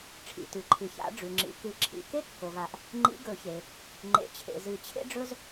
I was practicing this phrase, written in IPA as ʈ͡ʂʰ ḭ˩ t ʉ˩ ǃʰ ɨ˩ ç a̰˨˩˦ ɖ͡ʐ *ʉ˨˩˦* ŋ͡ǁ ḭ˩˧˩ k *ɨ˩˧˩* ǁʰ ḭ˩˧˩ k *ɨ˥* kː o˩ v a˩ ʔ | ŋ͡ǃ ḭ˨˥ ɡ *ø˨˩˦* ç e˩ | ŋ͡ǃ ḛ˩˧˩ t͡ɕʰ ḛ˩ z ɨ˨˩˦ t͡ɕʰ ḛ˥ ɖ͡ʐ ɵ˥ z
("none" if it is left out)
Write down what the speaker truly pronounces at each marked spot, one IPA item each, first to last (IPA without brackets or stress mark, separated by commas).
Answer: ʉ˩, ɨ˨˩˦, e˥, ɵ˨˩˦